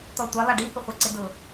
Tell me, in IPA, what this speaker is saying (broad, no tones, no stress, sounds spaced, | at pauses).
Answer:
t̪ ɔ tʷ a lˠ a ɖ i h ʊ χʷ ɛ ǀ ɪ d ʊ